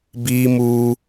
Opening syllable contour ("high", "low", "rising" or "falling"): high